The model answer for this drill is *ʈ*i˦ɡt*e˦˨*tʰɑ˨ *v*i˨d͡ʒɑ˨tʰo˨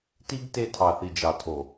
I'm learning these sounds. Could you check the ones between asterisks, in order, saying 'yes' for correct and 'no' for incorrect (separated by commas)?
no, yes, no